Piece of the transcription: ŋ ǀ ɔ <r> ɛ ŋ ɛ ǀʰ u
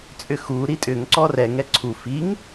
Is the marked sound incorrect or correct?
correct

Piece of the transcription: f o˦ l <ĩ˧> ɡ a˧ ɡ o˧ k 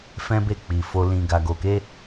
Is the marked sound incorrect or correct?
correct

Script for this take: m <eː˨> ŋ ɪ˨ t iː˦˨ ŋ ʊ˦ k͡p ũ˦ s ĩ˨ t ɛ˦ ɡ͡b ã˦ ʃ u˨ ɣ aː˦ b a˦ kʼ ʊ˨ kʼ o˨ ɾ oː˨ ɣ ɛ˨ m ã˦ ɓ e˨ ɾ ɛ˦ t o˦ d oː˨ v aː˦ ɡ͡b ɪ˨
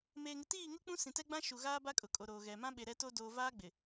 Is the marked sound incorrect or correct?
correct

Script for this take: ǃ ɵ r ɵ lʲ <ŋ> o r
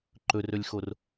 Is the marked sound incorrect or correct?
incorrect: x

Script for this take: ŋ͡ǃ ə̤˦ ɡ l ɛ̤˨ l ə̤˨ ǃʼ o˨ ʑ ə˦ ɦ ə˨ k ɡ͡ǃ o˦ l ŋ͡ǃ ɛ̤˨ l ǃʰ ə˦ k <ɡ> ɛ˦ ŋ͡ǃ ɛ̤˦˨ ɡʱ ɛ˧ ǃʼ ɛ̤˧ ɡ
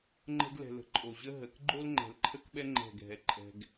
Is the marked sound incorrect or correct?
incorrect: ɓ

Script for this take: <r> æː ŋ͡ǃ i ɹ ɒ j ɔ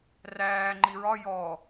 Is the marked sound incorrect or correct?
correct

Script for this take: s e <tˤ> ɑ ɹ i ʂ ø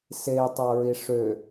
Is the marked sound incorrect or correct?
correct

